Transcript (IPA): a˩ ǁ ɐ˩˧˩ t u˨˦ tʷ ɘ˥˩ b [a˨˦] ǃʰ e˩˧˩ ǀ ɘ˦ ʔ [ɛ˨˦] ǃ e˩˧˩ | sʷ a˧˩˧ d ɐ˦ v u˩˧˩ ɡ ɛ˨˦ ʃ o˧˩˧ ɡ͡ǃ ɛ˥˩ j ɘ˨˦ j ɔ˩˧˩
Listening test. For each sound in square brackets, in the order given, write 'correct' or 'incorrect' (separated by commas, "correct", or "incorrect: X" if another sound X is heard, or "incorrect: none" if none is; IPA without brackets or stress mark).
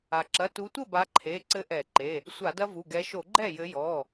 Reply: correct, incorrect: ɛ˧˩˧